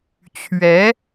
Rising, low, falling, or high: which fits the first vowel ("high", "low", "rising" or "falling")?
rising